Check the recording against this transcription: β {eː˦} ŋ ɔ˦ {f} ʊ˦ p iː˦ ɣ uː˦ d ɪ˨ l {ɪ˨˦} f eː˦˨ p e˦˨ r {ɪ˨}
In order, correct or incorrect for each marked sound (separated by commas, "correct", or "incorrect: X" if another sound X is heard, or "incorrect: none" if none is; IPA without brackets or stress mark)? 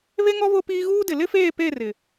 incorrect: e˦, incorrect: β, incorrect: ɪ˦, correct